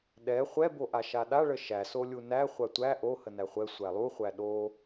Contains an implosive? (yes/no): yes